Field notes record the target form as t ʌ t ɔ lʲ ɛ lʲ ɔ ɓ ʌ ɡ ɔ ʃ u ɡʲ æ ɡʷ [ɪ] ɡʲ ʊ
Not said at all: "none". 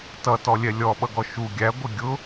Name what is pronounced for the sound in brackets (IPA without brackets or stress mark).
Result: ɪ